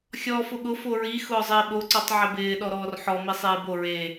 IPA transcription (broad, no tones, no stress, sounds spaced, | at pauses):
xʲ ɔː f ʊ ɠ ʊ f o ɹ i x ʊː zˤ ɪː ɓ o ǀ ɔ tˤ ʕ ɪ b ɪː ɗ ɔ ɾ ɔː r ħ ɔ m i sˤ iː b o ɹ e